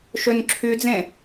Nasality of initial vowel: oral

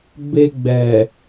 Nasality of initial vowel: oral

